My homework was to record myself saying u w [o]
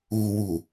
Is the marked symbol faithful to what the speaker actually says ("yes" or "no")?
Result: no